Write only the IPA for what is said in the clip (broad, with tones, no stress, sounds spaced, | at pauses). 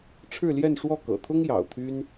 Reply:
ʈ͡ʂʰ ɻ̩˥˧ l j ɛ˥˧ n ʂ w ɔ˥˩ k ɤ̰˨˩ t̪ʰ ʊ˥ ŋ j ɑ̰˨˩ ʊ̯ t̪ʰ y˥ n